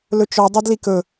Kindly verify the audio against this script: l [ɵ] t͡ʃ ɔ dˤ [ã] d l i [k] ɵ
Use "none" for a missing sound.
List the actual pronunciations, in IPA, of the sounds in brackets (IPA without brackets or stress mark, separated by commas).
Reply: ɵ, a, k